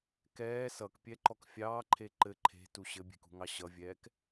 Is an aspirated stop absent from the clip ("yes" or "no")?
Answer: no